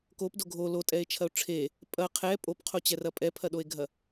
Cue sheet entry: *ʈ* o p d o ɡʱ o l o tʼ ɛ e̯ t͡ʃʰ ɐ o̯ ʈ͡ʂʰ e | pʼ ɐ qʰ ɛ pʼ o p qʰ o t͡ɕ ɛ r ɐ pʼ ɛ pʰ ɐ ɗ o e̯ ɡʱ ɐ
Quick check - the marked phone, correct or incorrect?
incorrect